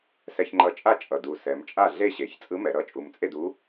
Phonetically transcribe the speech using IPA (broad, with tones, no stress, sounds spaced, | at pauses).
s ɛ˧ ç ŋ͡ǃ ʌ˧˥ t͡ʃʼ a˥˨ t͡ʃʼ ʌ˨˩ d u˨˩ s ɛ˩˧ m t͡ʃʼ a˥˨ ɮ e˥˨ ɕ e˩˧ ç t͡sʼ ɯ˧˥ m ɛ˩˧ ɾ ʌ˧˥ t͡ʃʼ u˧ m t͡sʼ e˥˨ d u˧˥